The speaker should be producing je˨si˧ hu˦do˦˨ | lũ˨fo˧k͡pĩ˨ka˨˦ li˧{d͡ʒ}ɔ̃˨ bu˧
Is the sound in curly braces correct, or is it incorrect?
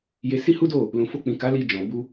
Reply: correct